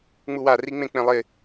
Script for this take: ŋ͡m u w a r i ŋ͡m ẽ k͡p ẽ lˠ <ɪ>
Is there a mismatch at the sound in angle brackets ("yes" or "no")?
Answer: no